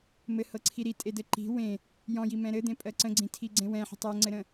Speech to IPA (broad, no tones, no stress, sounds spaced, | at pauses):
m ɘ h ɤ ǀʰ i ɾ i tʼ e d ɘ ǃ i̤ w ẽ | j ɔ̃ j i m ɛ̃ ɾ ɘ d̪ ẽ pʼ ɜ ǀ ə̃ ɡ͡ǀ ĩ tʰ i ɡ͡ǀ ẽ w ɛ̃ ħ ə̤ tˤ ɜ ŋ͡ǀ ɘ ɾ ə̃